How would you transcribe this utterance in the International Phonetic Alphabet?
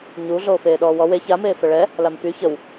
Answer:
ɲu ɮoːfeːɗɔːwɔ we çameː fəɭɛ | lamfy çəw

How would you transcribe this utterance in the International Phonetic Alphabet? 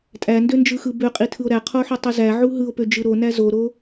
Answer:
tʼændønd͡ʒɯxɯ bøqʼitʰɯo̯ ɾæqʰoħotˤu zæʕu ɦɯo̯pød͡ʒɯ ɾonæ zoɾo

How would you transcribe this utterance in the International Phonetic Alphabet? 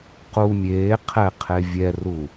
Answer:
qu mʲeː qʰɛ qʰevʲɛru

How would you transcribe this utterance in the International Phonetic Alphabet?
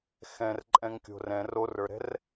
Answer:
xɛ̃rǃʼɛ̃ŋkʲo̤ rɛ̃ rorə˞ɾɛ̤r

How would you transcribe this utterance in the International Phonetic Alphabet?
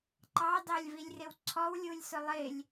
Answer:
ǃɑ dɑlʲvilʲrɪwǀʰɔw lʲulʲsʊlˠɪlʲ

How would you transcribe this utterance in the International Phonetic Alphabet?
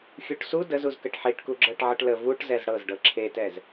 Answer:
xʲuʈsu dəzuzkəʈ ħiʈku ɡ͡ǁɤʈʕəʈlə vuʈzɛz ɽɤzɖɤ ǁʰetɛz

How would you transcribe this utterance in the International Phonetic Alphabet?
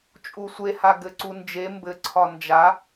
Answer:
t͡ʃʼusʷeha ɡɘǀund͡ʒe mbɘ ǀʰɒnd͡ʒa

